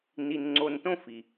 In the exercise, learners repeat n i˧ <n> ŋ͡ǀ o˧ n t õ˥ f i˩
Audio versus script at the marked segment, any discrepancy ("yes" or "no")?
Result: no